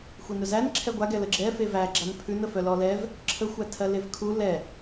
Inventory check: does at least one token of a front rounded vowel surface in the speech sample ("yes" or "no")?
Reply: yes